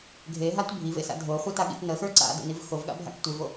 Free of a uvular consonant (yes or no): no